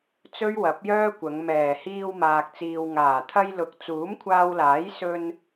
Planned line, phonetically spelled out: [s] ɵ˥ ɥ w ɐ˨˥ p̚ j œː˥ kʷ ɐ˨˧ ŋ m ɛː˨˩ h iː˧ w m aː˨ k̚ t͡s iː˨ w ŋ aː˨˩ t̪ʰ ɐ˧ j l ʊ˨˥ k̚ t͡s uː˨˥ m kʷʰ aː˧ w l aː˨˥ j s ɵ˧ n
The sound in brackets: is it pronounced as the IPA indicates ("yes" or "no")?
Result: no